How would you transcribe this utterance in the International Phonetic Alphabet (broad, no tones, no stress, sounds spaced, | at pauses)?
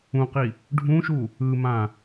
ũ q i | ɖʱ ũ ʃ u | ɯ m ã